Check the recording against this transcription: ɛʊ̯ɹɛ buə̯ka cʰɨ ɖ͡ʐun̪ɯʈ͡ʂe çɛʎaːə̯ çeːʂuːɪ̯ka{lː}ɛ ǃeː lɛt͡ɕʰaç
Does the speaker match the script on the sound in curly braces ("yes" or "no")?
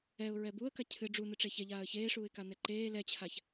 no